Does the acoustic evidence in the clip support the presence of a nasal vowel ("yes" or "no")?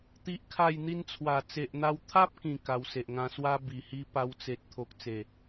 yes